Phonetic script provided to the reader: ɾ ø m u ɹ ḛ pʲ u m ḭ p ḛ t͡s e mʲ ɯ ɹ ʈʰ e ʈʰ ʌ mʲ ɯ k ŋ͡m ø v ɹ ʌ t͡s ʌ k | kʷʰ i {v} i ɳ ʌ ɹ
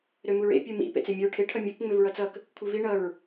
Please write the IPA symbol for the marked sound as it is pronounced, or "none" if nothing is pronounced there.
v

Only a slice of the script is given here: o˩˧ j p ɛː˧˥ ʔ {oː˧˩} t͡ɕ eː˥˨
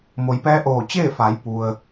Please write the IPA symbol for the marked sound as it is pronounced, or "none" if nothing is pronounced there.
oː˧˩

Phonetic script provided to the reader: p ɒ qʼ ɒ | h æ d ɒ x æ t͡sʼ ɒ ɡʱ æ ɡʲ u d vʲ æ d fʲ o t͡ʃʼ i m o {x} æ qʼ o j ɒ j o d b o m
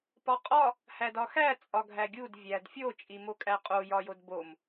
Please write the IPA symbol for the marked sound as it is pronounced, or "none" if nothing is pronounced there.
kʼ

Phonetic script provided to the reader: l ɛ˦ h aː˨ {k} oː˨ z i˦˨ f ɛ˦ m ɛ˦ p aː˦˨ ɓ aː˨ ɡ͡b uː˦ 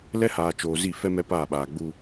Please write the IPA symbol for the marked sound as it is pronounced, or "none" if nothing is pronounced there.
t͡ʃ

